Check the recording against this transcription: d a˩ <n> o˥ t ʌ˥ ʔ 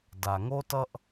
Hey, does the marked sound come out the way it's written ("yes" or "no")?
no